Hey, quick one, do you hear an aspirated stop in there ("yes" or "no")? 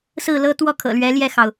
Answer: yes